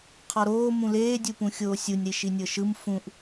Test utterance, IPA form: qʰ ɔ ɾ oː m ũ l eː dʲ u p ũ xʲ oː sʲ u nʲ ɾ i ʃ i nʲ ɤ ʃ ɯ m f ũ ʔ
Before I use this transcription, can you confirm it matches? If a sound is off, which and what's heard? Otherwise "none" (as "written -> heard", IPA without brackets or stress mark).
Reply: none